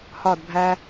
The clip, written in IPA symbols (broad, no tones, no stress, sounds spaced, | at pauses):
h ɒ d bʱ æ